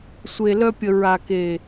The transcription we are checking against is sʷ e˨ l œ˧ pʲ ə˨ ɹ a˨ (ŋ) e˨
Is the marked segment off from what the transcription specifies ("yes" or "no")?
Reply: yes